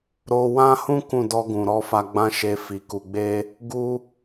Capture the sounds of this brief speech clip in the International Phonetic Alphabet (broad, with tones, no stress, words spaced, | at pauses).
ɾo˧wã˦hũ˦ kũ˦˨ dɔ˧ɡũ˨ɾɔ˧ fa˧ɡ͡bã˦ʃe˧ fi˨ku˨ɡ͡be˧ | ɡu˦